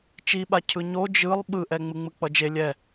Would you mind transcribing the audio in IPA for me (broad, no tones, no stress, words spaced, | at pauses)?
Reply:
t͡ʃiɓa cʰɯɲo d͡ʒɯlˠ ɓɯʔɛ ŋ͡mɯŋ͡mɯk͡pʌd͡ʒe lʲɛ